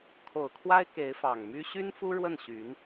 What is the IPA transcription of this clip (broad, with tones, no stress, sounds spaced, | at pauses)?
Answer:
kʰ o˨˩ ʊ̯ kʰ w a˥ ɪ̯ k e˧˥ ɪ̯ f ɑ˨˩ ŋ m y˥ ɕ y˥ n f u˥ ɻ w ə˥˩ n ɕ y˧˥ n